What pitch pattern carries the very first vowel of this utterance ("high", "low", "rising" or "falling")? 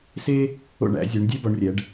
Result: high